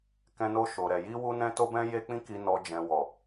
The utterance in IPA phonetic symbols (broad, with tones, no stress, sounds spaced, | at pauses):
k ɛ̃˧ n o˧ ʃ o˨ ɾ ɛ˨ j i˧ w u˧ n ɛ̃˧ t o˧ b ɛ̃˧ j e˧ k͡p ĩ˧ k i˨ n ɔ˨ d͡ʒ ɛ̃˨ w ɔ˨